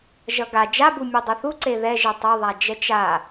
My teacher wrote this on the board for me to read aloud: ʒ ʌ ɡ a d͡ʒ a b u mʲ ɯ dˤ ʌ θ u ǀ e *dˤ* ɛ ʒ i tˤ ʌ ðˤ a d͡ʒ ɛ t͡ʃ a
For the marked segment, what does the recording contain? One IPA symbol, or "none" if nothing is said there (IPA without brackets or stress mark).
ð